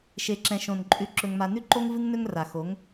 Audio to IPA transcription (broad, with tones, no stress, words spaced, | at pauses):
ʃe˨ǁɛ̃˨ʃõ˨n ǃʼʉ˨ǁɵ˨ŋma˨ nʉ˦ǃo˦ŋ vɨ˦ŋnɵ˦ŋra˨ xo˨˦ŋ